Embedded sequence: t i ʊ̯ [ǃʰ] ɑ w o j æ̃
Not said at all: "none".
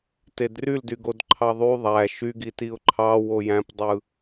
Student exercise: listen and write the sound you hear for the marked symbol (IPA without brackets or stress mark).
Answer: ǃʰ